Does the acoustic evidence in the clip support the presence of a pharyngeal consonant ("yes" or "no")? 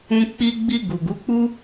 no